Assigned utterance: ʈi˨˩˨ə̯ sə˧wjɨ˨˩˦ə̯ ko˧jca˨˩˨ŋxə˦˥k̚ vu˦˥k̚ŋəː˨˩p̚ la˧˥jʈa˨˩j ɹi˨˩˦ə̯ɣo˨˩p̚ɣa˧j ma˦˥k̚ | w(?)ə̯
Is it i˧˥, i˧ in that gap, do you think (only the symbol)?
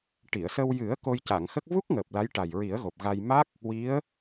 i˧˥